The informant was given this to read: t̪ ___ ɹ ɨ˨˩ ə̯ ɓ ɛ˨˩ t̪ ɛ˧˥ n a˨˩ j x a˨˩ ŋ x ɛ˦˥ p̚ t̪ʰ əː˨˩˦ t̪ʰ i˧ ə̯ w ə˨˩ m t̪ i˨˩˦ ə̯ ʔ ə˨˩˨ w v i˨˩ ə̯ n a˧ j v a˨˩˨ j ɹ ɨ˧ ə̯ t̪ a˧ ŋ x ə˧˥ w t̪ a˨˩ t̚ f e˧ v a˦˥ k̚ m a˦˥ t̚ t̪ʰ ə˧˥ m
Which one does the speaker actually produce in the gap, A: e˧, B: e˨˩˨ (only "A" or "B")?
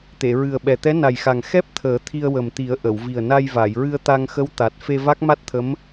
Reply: B